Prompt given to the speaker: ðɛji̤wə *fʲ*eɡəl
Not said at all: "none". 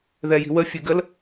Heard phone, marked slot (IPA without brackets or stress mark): fʲ